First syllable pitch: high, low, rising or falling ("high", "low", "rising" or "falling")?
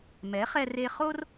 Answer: rising